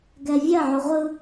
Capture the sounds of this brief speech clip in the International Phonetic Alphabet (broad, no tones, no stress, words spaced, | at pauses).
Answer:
ɡɛvʲɐ ʕoʁʷɯ